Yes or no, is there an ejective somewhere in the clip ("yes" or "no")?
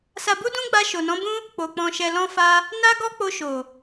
no